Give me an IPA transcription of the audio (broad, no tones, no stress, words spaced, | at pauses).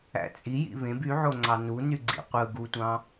æ̰t͡sʼi jḭβẽb yʕoŋ͡ǀɑ nu nyɡ͡ǀḭqʷɯ ɡutʷɑ̃